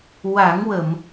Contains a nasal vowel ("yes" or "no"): no